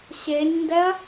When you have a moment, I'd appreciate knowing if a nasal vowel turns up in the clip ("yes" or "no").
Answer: no